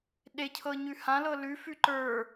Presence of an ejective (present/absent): absent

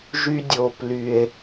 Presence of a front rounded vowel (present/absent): present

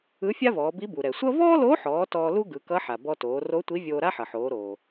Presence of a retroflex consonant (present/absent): absent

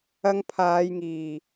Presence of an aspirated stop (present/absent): present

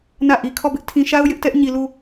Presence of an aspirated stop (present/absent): present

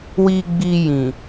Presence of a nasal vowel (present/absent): present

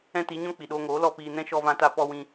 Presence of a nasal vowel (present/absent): present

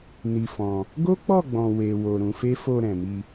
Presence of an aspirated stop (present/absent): absent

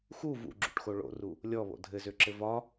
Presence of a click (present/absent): present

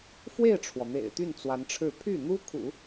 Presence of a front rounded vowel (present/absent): present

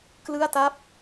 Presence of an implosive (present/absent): absent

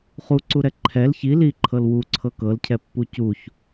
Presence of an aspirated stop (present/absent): present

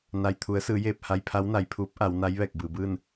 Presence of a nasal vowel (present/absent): absent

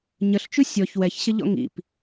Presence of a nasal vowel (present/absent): absent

